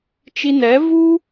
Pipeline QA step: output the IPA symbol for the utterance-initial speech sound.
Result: t͡ʃ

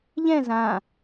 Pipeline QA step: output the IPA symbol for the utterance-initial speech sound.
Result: ʎ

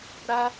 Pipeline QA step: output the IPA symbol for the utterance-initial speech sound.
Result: ɾ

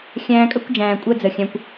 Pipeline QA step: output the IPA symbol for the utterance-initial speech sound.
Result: xʲ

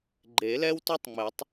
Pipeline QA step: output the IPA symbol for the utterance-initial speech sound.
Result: ɡ͡ǃ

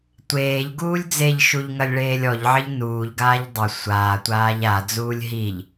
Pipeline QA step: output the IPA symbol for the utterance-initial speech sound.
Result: tʷ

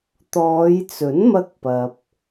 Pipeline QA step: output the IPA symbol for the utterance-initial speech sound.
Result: t̪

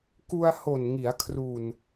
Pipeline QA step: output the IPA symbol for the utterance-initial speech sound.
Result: k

